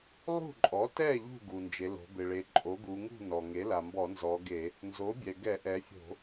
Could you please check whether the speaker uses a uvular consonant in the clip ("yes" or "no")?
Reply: no